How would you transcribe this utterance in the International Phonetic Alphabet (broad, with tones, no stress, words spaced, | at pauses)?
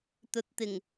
t̪ɵ˨˥t̚t̪ɪ˨˩ŋ